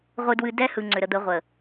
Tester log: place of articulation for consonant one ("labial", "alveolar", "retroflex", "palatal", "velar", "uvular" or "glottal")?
uvular